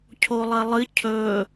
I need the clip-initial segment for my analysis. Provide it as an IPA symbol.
cʰ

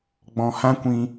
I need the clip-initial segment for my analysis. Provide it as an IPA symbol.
ɡ͡b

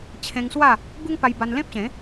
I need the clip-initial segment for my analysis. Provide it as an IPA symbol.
t͡ɕʰ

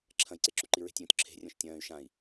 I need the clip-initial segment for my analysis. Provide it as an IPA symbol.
ǁʰ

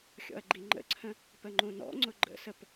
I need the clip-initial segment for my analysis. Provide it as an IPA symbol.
xʲ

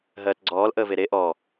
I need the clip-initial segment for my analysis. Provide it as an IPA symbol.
ɦ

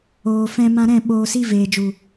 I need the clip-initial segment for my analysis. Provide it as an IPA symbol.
oː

